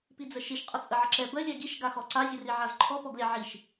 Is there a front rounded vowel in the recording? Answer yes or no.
no